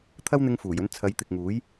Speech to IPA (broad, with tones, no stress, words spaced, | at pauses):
t̪ʰɐ˥wn̪ɪ˧ŋfuː˨˩jɵ˧n t͡sʰɐ˨˧jt̪ɪ˨k̚ŋuː˨˥j